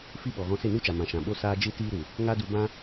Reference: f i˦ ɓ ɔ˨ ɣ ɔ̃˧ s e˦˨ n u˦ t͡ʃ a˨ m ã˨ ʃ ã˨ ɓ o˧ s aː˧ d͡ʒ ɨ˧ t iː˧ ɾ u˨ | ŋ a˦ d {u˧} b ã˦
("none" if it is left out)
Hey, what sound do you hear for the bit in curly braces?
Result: u˧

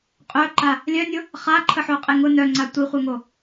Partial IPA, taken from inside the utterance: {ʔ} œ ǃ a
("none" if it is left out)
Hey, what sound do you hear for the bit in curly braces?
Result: qʼ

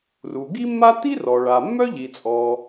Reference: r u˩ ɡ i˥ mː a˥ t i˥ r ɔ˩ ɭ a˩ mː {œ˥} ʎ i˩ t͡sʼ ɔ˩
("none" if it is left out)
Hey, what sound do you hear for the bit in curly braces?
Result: œ˥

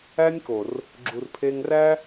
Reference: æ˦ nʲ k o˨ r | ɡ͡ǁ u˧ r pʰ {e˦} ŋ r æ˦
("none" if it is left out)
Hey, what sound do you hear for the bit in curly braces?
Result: e˦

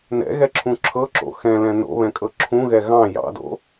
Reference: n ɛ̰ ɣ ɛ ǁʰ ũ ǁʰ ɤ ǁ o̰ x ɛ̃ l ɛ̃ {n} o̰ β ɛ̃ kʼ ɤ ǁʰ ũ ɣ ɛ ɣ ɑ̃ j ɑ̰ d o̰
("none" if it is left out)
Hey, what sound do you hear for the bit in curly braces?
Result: n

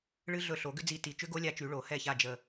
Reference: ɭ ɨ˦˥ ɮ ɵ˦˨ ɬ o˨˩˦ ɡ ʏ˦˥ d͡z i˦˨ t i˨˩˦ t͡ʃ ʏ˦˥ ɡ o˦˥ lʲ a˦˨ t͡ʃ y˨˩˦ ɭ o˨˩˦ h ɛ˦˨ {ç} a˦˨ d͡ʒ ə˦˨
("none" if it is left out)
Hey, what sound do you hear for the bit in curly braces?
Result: ç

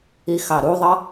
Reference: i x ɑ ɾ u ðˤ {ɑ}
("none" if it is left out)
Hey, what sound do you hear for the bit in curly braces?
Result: ʌ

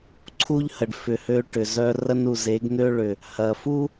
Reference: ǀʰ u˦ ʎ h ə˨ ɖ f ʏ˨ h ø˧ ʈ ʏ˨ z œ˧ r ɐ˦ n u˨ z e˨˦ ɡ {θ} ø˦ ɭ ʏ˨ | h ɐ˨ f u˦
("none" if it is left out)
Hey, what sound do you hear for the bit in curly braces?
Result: n̪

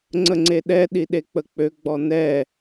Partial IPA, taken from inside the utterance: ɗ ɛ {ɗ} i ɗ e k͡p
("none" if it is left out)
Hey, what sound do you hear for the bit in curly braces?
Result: ɗ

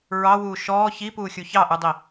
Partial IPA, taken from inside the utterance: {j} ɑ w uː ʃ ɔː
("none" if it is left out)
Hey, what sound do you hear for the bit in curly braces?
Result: ɹ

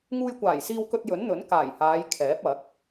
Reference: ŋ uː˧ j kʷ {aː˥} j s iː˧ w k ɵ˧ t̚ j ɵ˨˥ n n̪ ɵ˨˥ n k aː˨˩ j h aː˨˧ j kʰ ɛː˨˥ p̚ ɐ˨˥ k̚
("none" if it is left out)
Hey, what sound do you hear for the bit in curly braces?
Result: aː˨˩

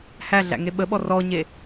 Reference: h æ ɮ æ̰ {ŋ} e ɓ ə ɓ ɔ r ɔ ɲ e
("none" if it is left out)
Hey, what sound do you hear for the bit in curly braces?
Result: ŋ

